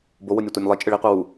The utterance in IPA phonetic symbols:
b o w o nʲ ɛ tʷ e nʲ lˠ i t͡ʃʼ ɯ ɭ i qʷ a w u

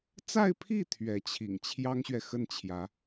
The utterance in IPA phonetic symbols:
t͡s a˥˧ ɪ̯ pʰ i˥˩ t̪ʰ ɥ ɛ˧˥ t͡ɕʰ ḭ˨˩ ŋ t͡ɕʰ j ɑ˥ ŋ ɕ ɥ ɛ˨ x ə˥˩ n t͡ɕʰ j ä˧˥

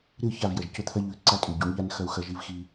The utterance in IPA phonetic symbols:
ɾ ɨ˦˨ ç a˦˨ v j ɐ˨ ʒ c ɵ˦ t̪ʰ ɐ˦ ʎ ʉ˨˦ ǀ a˦ tʼ ʉ˨ ɟ u˨˦ ɳ ʎ a˦ n x ɐ˦ u̯ x ɐ˦ ʒ i˦ v x i˦

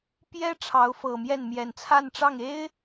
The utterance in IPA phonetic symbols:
p j ɛ˥ ʈ͡ʂʰ ɑ˧˥ ʊ̯ f ɤ˨˩ m j ɛ˥˩ n m j ɛ˨˩ n t͡sʰ a˥˧ n ʈ͡ʂ ɑ˥˩ ŋ e˥ ɪ̯

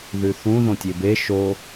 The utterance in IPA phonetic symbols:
ð ʉ θ ũ ð õ tʲ e b e ʃ o

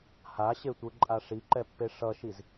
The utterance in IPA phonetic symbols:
h a ɕ e tʷ ɯ ǃʼ a ʂ i ǃ ɛ pː e ʂ ʌ ʃ i z

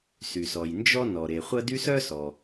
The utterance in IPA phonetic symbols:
s y˩ s ɔ˩ j n d͡ʒ ɔ˥ n ɔ˩ ɾ e˩ χʷ ɐ˥ d y˥ s œ˥ s ɔ˩

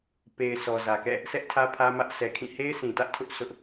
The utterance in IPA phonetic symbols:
p e˨ ɪ̯ sʰ ɔ˨ z ä˨ k ɛ̰˦˨ | s ɛ˦ ʔ tʰ ä˦ pʰ ä˦ m ä˦ ʔ sʰ ɛ˨ kʰ ĩ˦˨ h e˦ ɪ̯ sʰ ĩ˨ t ä˦ ʔ tʰ ʊ˦ ʔ s ʊ˦ ʔ

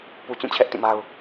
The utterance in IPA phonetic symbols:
p u˨ t͡ɕ ũ˦˨ t͡ɕʰ ɛ˦ ʔ t ĩ˦˨ m a˦ ʊ̯

